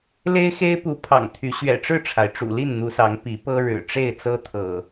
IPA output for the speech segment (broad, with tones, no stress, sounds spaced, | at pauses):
l e˦ ɪ̯ x e˦ ɪ̯ p u˨˦ pʰ ɑ̰˨˩ ŋ t̪ʰ y˨˦ ɕ ɥ ɛ̰˨˩ ʈ͡ʂ ɻ̩˥˨ ʈ͡ʂʰ a˩ ɪ̯ ʈ͡ʂ ṵ˨˩ l i˥˨ n n̪ u˨˦ s ɑ˨˦ ŋ p i˨˦ p ɤ˦ ɻ ɻ̩˨˩ ʈ͡ʂ e˥˨ ɪ̯ t͡s ɤ˦ t̪ʰ ɤ̰˨˩